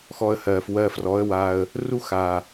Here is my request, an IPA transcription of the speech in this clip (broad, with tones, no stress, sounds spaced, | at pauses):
x ɔ˧ ə̯ h ɜː˨ f w ɜː˧ f r ɔ˨˦ ə̯ w aː˧ ə̯ | r u˦ x aː˨